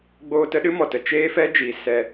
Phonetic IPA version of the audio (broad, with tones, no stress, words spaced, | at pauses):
ɡ͡boː˧tə˦ɗɨ˦ mɔ˨tə˧ t͡ʃeː˦fɛ˦d͡ʒiː˨ sɛ˧